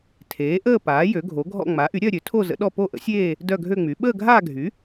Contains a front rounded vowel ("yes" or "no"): yes